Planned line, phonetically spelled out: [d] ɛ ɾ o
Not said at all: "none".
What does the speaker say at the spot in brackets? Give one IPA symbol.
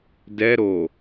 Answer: d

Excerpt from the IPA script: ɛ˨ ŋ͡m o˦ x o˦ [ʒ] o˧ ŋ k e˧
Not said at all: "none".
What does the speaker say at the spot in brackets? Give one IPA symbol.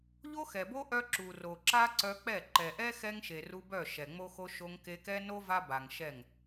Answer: ʃ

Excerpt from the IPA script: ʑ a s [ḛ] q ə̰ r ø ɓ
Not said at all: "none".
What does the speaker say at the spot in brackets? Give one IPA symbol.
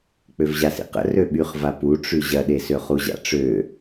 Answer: ḭ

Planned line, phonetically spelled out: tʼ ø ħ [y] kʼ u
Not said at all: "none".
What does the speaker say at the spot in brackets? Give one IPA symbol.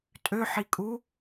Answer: i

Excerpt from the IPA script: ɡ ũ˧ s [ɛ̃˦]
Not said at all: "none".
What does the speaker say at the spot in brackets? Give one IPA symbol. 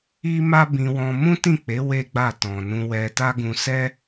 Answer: ɛ˦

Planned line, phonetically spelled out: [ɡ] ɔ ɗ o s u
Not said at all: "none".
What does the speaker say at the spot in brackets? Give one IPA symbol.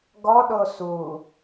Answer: ɡ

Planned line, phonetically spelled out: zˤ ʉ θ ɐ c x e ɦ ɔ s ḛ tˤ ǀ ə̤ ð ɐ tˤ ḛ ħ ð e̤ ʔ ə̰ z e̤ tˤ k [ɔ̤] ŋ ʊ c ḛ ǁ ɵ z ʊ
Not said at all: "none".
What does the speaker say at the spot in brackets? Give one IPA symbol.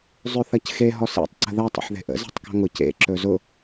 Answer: ɔ̤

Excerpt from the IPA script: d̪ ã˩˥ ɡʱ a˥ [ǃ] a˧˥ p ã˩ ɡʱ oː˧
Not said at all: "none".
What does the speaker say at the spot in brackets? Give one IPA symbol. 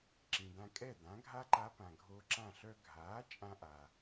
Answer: ǃ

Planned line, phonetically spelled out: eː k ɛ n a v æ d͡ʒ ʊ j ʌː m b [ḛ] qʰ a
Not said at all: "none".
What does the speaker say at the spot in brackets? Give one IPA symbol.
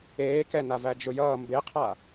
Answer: e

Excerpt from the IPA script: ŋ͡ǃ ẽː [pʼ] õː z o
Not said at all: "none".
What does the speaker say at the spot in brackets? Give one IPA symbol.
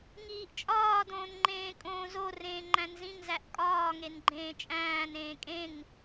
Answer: kʼ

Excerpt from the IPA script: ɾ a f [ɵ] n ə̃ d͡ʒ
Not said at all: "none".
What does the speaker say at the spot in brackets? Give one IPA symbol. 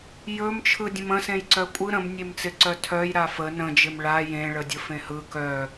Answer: ə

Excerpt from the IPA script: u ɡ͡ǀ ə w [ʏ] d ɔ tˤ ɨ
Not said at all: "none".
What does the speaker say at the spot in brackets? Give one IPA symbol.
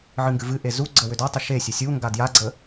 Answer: ʏ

